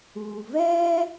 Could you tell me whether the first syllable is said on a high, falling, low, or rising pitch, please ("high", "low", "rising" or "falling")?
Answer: low